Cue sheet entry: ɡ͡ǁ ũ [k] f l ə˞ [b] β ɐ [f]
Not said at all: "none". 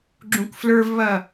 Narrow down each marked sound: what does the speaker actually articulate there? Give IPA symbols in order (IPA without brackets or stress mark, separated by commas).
k, v, none